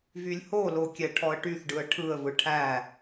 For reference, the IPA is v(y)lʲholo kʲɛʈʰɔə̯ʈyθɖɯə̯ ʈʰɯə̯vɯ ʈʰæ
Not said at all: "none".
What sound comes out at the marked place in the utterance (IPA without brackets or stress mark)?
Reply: y